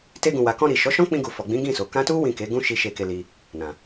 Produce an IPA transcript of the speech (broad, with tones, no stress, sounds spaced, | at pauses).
t e˧ ɡ ũ˨ w a˨ k ɔ̃˧ ɾ i˨ ʃ ɔ˨˦ ʃ ɔ̃˦ k͡p ĩ˧ ɡ u˨ f ɔ˨ ɡ͡b ĩ˨˦ ɡ ĩ˦˨ s o˨ k ã˧ t u˦ w ĩ˦˨ k e˨˦ ɡ ũ˦ ʃ i˦ ʃ e˧ k e˧ l i˧ | n ã˨